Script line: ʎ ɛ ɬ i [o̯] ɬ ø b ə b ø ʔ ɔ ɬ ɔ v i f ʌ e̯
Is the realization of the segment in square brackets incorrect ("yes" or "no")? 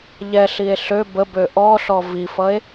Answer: yes